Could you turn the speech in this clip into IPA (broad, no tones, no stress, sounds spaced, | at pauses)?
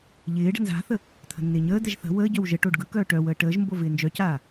ʎ ɪː ɖ ə̤ n z a̤ θ ə | t̪ʰ ə̤ nː ɪː ɲ əː d̪ ɛ ʒ θ ə̤ w əː ɟ œ w ʒ ə ʈ o ɖ ɡ ɯ k œː ʈ œ w əː ʈ əː ʒ m b o v ɪː n d͡ʒ œ c aː